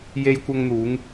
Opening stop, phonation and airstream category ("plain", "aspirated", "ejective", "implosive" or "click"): plain